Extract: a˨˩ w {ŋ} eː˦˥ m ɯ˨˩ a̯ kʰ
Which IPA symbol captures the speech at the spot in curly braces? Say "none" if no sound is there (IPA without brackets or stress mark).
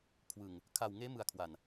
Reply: ŋ